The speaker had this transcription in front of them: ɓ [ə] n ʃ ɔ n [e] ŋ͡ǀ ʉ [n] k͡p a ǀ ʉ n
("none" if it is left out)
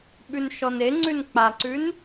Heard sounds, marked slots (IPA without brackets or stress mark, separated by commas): ʉ, e, n